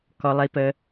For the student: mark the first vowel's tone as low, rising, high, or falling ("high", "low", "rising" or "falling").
low